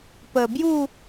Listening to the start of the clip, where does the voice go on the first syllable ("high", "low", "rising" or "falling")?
low